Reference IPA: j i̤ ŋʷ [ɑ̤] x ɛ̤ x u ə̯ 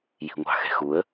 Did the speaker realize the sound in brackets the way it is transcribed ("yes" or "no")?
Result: yes